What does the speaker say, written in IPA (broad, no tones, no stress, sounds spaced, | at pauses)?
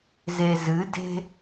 z e z ɨ d e̤